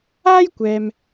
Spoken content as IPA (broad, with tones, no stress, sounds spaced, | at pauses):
aː˥ j kʷ ɛː˨ m